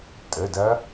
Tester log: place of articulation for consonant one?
alveolar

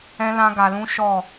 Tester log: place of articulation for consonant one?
alveolar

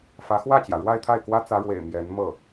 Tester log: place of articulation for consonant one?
labial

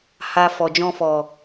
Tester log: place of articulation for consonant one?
glottal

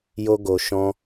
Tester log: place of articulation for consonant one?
palatal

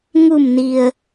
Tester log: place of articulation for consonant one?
velar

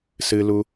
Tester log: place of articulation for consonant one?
alveolar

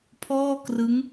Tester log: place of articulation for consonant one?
labial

